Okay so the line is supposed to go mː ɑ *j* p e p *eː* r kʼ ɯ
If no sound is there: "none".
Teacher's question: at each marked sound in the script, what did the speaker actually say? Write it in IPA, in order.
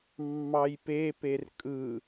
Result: j, e

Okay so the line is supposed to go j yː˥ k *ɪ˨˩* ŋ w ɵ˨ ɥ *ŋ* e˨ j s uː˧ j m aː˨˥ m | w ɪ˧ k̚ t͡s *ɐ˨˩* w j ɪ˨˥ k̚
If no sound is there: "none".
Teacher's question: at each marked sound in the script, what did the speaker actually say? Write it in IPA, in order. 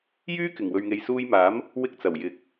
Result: ɪ˨˩, ŋ, ɐ˨˩

